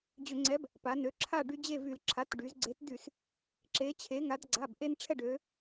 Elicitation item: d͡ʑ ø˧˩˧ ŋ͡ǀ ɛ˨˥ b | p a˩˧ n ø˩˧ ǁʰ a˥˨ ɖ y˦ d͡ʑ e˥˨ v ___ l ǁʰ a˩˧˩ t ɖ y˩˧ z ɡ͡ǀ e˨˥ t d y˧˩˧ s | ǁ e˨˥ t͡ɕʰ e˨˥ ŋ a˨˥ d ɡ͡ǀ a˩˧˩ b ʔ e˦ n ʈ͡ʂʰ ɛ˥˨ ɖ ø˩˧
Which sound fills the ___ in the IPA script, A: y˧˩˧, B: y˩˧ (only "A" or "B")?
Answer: A